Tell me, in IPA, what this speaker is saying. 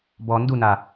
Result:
bɔ nduna

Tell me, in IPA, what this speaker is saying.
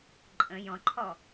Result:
ǃʼə̃ jɔ̃ǃʰɔ

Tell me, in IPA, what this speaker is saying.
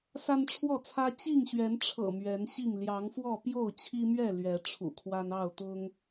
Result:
sa˦nʈ͡ʂʰwɔ˥˨t͡sʰä˦ t͡ɕi˥˨ŋɕɥɛ˨˦nʈ͡ʂʰɤ̰˨˩ mɥɛ˨˦nɕi˥˨ŋ ljɑ˨˦ŋfwɔ˥˨ pjo˥˨ʊ̯t͡ɕʰi˦mɥɛ˥˨ lɥɛ˨˦ʈ͡ʂʰṵ˨˩kʰwa˦n ɑ˥˨ʊ̯t̪ʊ˦ŋ

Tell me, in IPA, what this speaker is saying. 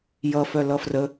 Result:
jʌ fœlʌfrə

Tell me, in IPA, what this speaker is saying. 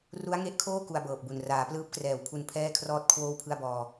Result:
ru˦˥a̯ŋe˦˥ʔkʰoː˥˩ ku˧a̯bɤː˨˩p̚bu˨˩n raː˩˦plɯː˦˥p̚krɛː˨˩w pʰu˧n pʰɛː˥˩kʰrɔː˥˩t̚ kʰwoː˥˩wpʰɯ˥˩a̯bɔː˧

